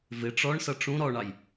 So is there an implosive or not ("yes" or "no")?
no